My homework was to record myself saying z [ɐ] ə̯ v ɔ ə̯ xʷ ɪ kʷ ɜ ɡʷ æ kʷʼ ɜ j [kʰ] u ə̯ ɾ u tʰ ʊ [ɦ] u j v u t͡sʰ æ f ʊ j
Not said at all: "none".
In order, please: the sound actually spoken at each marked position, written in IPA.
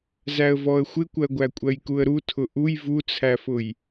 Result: æ, k, ʔ

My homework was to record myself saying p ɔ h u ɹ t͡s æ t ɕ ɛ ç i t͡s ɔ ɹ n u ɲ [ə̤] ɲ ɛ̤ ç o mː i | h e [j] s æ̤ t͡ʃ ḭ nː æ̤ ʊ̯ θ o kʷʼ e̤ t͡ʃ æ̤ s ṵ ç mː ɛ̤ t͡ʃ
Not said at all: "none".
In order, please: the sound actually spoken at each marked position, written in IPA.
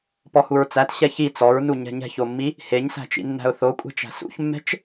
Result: ɛ̤, ɲ

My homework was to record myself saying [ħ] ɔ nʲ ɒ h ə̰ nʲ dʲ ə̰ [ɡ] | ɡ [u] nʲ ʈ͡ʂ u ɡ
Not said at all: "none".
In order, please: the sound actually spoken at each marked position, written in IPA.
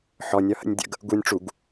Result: ħ, ɡ, u

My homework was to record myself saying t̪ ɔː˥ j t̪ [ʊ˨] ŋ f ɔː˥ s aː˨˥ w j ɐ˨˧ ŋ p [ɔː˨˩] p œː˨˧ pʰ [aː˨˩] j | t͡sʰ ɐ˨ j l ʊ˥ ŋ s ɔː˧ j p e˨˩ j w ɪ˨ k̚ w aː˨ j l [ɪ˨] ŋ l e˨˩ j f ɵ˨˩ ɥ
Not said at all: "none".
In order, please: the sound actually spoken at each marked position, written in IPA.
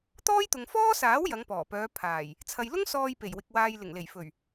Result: ʊ˨, ɔː˨˩, aː˨˩, ɪ˨˩

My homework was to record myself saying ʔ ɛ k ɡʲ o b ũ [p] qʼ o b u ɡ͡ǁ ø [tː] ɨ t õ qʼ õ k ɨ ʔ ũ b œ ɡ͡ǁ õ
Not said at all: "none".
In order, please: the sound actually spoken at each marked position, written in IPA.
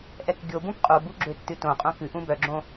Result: p, tː

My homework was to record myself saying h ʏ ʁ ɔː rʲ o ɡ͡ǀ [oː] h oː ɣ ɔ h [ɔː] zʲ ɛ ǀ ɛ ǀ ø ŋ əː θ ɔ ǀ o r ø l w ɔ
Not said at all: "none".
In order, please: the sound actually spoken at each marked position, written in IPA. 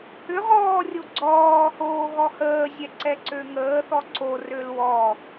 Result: ɔː, əː

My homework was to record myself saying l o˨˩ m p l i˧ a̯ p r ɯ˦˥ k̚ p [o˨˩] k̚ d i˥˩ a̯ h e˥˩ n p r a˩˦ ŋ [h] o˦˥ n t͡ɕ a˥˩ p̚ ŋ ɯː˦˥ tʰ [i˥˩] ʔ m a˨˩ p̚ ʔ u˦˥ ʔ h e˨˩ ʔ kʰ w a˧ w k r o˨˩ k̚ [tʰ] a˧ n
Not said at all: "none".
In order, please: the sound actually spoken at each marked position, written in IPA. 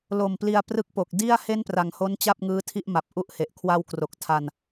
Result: o˨˩, h, i˥˩, tʰ

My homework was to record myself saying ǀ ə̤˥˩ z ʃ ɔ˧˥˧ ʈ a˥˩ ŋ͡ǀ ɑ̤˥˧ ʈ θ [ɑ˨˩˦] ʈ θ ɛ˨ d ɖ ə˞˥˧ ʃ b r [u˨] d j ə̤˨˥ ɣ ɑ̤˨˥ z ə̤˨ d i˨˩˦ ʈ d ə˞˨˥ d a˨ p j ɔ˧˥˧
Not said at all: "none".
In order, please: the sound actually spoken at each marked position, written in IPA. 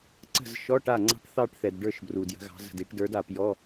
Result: ɑ˥˧, u˨

